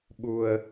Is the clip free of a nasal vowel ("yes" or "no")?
yes